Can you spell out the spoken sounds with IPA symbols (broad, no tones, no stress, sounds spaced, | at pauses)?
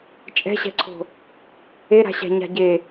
t͡ʃʼ ɛ̤ ɕ ɛ̤ ǀʰ o̤ | e ɾ a̤ ɕ æ̤ ɲ a̤ ɟ e